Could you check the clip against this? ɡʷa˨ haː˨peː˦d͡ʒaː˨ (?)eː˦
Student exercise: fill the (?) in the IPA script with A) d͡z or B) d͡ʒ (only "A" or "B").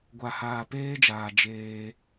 B